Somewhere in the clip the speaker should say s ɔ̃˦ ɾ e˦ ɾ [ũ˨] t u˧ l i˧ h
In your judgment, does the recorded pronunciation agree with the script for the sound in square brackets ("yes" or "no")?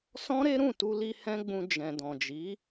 no